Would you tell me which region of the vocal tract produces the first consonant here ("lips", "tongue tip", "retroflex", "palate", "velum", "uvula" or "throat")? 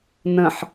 tongue tip